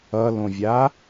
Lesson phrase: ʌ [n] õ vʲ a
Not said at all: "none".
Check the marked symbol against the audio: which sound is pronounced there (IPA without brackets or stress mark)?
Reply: l